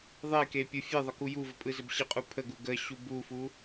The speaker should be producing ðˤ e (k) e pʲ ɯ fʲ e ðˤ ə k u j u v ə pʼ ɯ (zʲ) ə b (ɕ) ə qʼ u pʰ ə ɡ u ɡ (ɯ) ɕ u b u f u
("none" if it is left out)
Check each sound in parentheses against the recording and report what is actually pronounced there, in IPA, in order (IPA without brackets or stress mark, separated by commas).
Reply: k, z, ɕ, ə